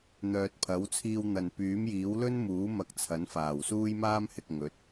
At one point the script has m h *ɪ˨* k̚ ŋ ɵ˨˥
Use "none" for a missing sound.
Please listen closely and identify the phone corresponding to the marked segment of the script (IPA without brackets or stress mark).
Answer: ɪ˨